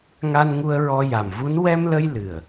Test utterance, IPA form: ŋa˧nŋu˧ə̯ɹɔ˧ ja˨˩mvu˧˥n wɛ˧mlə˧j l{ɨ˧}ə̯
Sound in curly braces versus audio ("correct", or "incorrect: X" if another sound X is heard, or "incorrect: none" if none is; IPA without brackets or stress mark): incorrect: ɨ˨˩